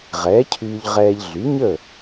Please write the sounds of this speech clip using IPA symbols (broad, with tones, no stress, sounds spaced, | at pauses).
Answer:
ʁ ɛː˩˥ cʰ yː˧ ʎ ʁ ɛː˧ ʎ ɮ y˩˥ ɲ ə˥˩